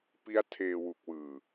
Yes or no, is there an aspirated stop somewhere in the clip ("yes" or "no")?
yes